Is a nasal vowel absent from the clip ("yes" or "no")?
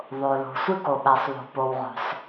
yes